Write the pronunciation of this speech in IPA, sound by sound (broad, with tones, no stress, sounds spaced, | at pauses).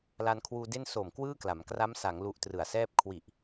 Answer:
l a˧ n kʰ w uː˧ d e˥˩ n s o˨˩ m k w ɯː˥˩ k l a˩˦ m k r a˦˥ m s a˩˦ ŋ l u˦˥ ʔ t r ɯ˨˩ a̯ s ɛː˥˩ p̚ kʰ w i˨˩ ʔ